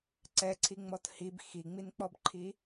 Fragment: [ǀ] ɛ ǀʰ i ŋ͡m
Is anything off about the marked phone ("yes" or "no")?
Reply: no